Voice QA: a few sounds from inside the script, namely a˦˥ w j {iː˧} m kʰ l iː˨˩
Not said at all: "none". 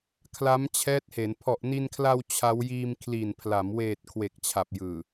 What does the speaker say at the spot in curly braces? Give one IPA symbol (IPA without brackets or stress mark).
iː˧